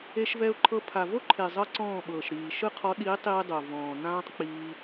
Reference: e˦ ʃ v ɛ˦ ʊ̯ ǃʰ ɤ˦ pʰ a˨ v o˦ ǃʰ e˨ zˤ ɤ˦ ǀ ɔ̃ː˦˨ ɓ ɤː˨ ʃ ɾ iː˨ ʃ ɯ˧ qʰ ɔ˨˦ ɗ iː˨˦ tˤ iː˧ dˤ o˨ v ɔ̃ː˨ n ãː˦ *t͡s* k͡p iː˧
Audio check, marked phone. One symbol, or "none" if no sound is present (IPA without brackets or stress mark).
tˤ